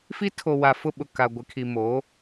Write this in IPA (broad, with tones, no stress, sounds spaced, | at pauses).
f i˦ tʰ o˨ w a˨ f ʊ˦ ɓ ʊ˨ k a˨ ɡʷ ɪ˨ kʰ i˨ m o˨˦